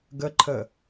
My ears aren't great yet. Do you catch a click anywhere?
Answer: yes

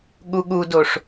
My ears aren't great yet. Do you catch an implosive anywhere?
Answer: yes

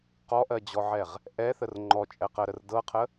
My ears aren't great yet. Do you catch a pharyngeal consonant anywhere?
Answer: yes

